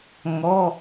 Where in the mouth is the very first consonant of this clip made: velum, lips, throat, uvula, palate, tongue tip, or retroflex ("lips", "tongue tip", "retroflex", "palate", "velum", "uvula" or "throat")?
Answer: velum